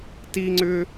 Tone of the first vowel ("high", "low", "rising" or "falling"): high